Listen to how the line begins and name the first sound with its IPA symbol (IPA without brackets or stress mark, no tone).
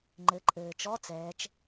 ŋ͡ǃ